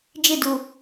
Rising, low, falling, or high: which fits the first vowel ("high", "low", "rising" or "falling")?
falling